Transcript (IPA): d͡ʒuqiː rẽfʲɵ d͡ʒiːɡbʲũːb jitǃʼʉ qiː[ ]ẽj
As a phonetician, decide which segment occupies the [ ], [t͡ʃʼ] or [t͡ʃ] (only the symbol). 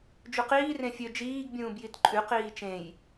t͡ʃ